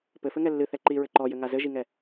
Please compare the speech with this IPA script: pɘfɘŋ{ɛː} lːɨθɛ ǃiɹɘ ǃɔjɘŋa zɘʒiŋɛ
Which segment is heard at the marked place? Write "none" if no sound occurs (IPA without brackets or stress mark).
ɛ